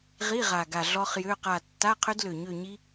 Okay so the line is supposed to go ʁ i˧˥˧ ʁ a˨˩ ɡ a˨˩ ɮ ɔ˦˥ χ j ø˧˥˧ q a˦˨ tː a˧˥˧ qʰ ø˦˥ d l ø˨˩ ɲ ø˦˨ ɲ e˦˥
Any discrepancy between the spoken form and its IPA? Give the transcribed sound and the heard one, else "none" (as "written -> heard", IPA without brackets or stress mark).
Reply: e˦˥ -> i˦˥